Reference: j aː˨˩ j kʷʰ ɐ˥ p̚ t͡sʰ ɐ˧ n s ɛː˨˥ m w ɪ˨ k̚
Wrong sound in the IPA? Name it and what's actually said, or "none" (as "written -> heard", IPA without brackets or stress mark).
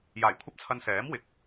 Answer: none